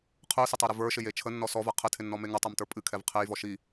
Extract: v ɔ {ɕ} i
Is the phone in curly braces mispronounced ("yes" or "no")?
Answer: yes